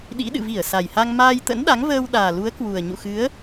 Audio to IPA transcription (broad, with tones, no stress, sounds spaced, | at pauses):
ɗ ḭ˧˥ ɗ ɨ̰˧˨ v i˧˩ ə̯ s a˨˩ j h a˧ ŋ m aː˧ j t̪ ə̰˧˥ n ɗ a˨˦ ŋ v əː˧ w ɗ aː˨˩ l u˨˦ ə̯ k w u˨˩ ə̯ ɲ ṵ˧˨ x ɨ˨˦ ə̯